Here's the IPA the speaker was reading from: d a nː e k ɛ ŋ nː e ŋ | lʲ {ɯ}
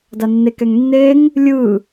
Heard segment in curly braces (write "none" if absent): ɯ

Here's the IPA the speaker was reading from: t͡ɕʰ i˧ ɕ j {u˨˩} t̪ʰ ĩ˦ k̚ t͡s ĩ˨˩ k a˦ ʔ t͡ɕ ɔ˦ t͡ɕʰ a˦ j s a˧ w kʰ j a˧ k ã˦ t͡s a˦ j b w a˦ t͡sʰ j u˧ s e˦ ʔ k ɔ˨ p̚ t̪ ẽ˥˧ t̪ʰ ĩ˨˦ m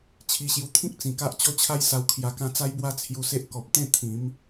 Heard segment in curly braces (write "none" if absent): u˧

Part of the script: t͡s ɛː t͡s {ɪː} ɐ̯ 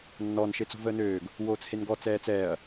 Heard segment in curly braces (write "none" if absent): ɛː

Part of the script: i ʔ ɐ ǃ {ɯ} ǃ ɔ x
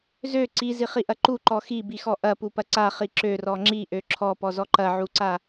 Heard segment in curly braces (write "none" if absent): u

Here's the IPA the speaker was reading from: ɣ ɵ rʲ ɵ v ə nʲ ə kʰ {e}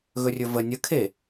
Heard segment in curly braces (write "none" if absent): e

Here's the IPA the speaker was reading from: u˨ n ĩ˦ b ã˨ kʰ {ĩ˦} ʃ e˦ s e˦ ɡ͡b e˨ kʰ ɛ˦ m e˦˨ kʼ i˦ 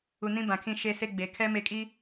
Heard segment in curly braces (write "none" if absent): ĩ˦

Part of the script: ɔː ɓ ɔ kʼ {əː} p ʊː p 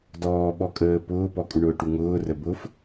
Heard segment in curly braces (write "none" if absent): əː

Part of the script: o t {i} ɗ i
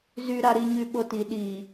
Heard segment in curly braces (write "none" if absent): i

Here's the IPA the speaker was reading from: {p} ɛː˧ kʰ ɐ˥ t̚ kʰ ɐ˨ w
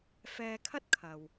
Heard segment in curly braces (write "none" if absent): f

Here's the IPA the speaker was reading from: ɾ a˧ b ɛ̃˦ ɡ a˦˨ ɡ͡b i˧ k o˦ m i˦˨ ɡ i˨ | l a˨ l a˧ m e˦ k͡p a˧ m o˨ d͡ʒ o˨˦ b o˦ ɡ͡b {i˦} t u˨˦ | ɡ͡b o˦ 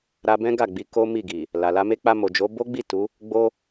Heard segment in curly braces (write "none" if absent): i˦˨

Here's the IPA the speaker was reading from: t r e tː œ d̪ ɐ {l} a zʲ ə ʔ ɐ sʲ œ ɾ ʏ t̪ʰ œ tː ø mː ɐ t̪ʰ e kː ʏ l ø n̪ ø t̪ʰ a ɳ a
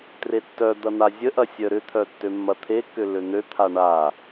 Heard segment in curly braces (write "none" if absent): n̪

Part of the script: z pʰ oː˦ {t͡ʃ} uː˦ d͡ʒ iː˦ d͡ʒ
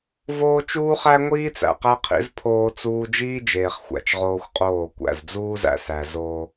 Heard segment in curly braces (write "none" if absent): t͡s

